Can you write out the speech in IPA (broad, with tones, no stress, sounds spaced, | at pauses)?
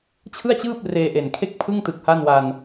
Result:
t͡ɕʰ ɯ˥˩ a̯ t͡ɕ ɯː˥˩ p̚ r eː˧ ʔ e˨˩ n kʰ e˥˩ k̚ pʰ ɯ˥˩ ŋ t ɯ˨˩ k̚ h a˥˩ n w a˧ n